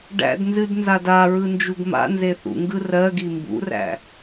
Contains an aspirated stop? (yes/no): no